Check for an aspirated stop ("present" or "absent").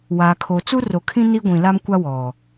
present